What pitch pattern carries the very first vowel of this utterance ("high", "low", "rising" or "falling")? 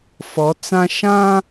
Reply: rising